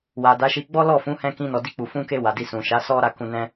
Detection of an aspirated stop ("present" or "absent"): absent